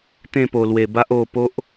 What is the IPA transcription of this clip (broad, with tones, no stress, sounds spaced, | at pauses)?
t̪ ẽ˥˧ p o˨˩ l w e˨˩ b a˦ ʔ o˧ p o˦ ʔ